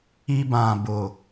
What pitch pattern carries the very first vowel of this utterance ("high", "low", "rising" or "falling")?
high